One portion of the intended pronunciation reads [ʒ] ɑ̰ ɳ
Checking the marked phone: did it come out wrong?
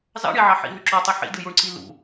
yes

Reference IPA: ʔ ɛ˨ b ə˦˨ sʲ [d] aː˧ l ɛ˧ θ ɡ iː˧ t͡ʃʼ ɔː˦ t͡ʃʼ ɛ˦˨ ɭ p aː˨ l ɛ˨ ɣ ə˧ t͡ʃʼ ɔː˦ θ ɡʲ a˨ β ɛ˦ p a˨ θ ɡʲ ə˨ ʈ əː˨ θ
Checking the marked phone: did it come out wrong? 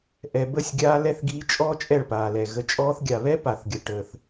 yes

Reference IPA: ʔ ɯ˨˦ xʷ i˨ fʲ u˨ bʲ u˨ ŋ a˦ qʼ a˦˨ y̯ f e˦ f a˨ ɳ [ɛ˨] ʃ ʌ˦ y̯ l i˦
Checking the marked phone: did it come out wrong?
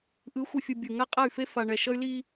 no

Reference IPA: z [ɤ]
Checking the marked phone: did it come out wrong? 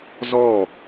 yes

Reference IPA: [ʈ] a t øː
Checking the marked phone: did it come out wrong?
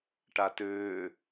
no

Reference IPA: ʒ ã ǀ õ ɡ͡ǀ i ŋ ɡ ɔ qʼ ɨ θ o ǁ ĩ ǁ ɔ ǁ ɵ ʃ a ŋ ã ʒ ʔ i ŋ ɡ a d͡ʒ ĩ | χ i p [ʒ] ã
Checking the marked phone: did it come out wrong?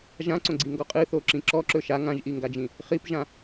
no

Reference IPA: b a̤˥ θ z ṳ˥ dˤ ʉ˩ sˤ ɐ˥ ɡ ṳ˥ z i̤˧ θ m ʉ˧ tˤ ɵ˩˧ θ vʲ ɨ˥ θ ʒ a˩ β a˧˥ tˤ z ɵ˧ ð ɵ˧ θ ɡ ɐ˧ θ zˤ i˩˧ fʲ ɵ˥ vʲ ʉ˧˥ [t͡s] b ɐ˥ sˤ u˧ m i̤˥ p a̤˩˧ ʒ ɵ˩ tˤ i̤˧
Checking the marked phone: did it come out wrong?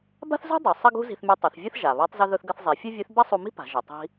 yes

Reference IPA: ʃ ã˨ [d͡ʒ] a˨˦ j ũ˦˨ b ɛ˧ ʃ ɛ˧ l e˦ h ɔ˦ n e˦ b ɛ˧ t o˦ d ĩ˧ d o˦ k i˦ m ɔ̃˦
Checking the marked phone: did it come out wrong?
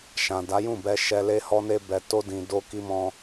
yes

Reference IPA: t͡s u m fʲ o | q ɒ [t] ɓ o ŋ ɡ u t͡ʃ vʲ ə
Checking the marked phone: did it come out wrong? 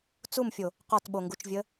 no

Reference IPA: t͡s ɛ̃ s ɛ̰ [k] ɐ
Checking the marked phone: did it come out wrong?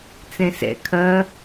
yes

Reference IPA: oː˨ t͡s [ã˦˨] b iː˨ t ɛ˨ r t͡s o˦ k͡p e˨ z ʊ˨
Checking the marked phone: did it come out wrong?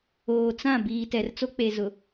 no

